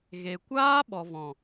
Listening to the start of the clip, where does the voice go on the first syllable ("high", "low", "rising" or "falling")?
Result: low